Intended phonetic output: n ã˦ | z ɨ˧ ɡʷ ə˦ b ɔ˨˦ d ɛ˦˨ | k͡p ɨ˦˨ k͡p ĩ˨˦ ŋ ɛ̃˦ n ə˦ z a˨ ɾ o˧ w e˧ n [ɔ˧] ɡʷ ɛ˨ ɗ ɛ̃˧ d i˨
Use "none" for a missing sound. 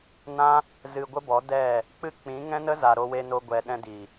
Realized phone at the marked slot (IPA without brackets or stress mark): o˧